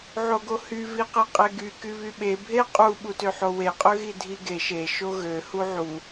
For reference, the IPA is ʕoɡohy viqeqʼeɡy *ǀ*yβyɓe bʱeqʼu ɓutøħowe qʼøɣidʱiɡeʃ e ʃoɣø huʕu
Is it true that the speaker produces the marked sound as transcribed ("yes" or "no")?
no